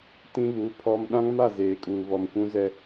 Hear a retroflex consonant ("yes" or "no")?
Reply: no